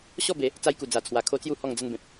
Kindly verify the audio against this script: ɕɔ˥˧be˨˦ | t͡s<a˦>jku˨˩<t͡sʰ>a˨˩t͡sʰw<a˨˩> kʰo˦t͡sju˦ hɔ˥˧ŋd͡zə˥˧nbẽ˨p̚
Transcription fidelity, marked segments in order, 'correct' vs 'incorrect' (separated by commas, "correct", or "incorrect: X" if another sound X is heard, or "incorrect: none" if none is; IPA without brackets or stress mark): incorrect: a˧, incorrect: d͡z, correct